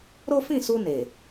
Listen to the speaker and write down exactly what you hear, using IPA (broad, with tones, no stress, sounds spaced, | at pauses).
ɾ o˦ f ĩ˦˨ s u˧ n e˨